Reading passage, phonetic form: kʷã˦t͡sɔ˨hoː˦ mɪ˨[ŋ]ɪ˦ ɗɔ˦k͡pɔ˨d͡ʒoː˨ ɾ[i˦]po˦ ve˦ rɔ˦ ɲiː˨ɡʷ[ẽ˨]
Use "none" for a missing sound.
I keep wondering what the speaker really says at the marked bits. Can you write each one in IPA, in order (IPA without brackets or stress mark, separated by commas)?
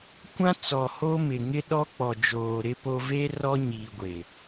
ŋ, ɪ˦, e˨